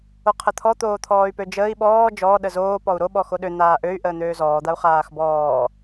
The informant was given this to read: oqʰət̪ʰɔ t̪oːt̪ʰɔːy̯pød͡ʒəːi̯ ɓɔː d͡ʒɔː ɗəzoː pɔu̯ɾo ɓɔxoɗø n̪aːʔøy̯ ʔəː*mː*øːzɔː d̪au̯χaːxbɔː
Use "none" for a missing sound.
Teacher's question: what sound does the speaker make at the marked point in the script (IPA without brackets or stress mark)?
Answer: n̪